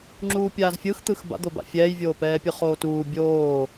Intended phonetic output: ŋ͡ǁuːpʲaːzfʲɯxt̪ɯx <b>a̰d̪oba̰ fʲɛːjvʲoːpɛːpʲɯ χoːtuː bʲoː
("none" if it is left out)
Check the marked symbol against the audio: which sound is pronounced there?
b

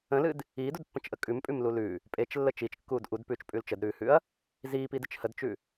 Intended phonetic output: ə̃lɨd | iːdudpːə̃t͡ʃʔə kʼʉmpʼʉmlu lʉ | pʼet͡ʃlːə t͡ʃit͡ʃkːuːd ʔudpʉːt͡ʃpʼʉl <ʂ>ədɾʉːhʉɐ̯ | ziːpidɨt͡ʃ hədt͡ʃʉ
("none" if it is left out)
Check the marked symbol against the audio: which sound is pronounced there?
t͡ʃ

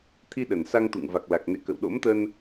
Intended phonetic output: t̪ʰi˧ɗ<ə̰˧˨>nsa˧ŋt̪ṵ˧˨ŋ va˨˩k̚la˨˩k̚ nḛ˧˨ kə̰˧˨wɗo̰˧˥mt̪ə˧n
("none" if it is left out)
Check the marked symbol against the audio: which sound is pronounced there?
ə˨˩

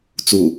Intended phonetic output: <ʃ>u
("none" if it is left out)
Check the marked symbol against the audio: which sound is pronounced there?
t͡s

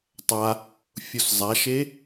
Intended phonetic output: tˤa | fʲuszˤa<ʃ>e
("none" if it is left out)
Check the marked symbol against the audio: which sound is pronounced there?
ʃ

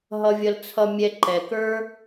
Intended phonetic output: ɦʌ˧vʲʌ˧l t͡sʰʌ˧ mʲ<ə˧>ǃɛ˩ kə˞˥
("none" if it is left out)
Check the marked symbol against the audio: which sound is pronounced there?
ɛ˧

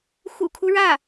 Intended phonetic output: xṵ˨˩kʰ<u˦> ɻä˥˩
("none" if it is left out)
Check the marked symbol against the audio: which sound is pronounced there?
u˦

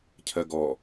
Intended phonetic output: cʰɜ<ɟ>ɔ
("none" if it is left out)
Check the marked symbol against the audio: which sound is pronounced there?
ɡ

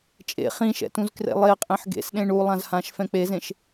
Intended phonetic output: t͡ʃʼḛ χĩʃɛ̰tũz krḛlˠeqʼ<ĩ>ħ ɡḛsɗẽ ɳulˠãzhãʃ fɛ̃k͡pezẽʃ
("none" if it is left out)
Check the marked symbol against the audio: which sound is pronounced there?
ẽ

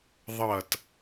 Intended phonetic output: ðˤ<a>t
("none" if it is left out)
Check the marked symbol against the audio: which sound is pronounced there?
ʌ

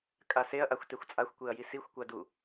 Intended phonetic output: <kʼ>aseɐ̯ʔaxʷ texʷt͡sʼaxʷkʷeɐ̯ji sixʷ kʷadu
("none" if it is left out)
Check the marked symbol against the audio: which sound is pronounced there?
kʼ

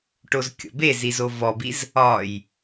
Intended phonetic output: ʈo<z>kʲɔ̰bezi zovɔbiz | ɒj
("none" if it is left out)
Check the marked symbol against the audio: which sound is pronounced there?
z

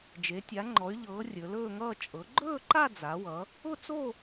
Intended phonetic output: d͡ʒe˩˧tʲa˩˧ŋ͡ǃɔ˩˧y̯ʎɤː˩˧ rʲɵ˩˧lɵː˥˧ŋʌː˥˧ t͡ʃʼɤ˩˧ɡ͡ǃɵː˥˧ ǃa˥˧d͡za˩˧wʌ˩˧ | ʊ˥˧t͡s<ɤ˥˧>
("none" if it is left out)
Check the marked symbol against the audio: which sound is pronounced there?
o˥˧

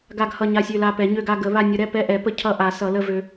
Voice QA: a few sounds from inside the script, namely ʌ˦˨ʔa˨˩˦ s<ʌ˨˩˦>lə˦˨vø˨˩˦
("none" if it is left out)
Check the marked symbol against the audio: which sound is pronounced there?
ʌ˨˩˦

